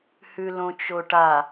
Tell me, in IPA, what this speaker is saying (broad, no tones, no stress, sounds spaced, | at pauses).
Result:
h ʉ l õ t͡ʃ o ʈ a